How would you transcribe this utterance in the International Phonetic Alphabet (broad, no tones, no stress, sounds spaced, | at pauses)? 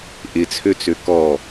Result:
ʔ ɪ t͡sʰ ø t͡s ø k ɔ